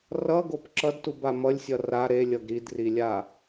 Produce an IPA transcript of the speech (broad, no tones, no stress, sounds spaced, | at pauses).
r ʌ ɡ o p ǁ ʌ d t u b a m ʌ lʲ sʲ ʌ r a ɾ e lʲ ʌ ɡ ɾ i d r i lʲ a